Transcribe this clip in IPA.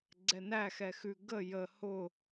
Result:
ɡ͡ǀ ɛ n æ x ɛ x ʉ ɡ ə j ə h ʊ

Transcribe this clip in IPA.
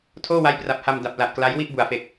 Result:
tʰ oː˥˩ w a˦˥ j p r a˨˩ p̚ h a˧ m d a˨˩ p̚ l a˨˩ ʔ k l a˦˥ j w i˥˩ ʔ b u˨˩ a̯ f e˨˩ k̚

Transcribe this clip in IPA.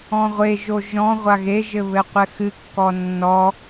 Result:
ɔ̃ ʁʷ e ʒ o ʒ ɔ̃ ʁʷ a ɣ e ʒ ɘ β ɘ qʷ ɛ x ɨ kː ɔ nː ɔ

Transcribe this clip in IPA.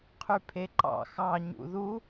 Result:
qʰ y pʰ e ǃ ɑ̰ x ɑ ɲ ṵ ð u

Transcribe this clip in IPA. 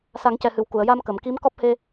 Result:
s a˨˩˦ ŋ c ɛ˨˩ h ɨ˨˩˨ w k u˨˩˨ ə̯ j a˧ m k ə˨˩˨ m k i˧˥ m k ɔ˦˥ p̚ h e˧

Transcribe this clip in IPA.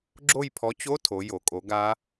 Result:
ɡ͡ǁ o˦˨ j pʰ ɔ˨˥ t͡ɕ o˧˥˧ tʰ o˩˧ j o˩˧ kʼ o˨˥ ɡ a˦˥

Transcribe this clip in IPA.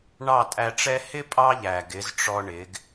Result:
ɳ ɑ˦˨ tʼ æ˧ ʈ͡ʂ ɛ˦ h ɪ˦ pʼ ɑ˦ ʎ æ˨ ɡ ɪ˨˦ z ʈ͡ʂ ɔ˧ ɳ ɪ˨˦ ɡ

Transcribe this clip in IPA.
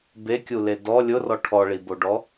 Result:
b e kʲ u l e d ɔ lʲ ʊ r ɔ ʈʰ ɔ ɭ i b o ɖ ɔ

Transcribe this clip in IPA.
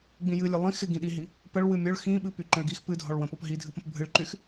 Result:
ɡ͡b ĩ j ɨ lʲ ə lˠ ĩ x ɪ ɡ ĩ ɗ i ɦ i | p ə ɭ w ɨ mʲ ʊ ɭ x ĩ ɓ ɨ p y ǃ ə̃ ɭ ɡ i x p ɨ dʱ ɔ ɭ w ə̃ p ɔ p ɦ i dʱ ɨ p ə̃ p bʱ ɨ ɭ ǃ y x

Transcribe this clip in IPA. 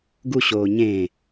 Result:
ɡ u ɕ oː ɲ ẽː

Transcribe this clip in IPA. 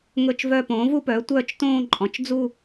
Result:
ŋ ɵ˥˧ t͡ʃ v œ˥˧ p õː˩˥ v u˥˧ p œː˩˥ tʷ œː˥˧ t͡ʃ t õː˥˧ ǃʼ ɔ̃˩˧ t͡ʃ d͡z u˥˧

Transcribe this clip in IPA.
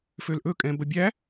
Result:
f ø l ʔ ɵ kʼ ɛ̃ b ə bʲ æ

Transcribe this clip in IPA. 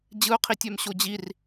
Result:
d͡ʑ ɯ ʊ̯ qʰ i tʲ ɛ m ɕ o d͡ʑ i r

